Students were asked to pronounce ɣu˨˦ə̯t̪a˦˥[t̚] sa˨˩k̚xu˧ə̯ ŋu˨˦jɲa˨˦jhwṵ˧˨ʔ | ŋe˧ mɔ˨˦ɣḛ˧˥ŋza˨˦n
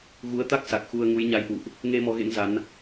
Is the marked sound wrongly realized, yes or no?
yes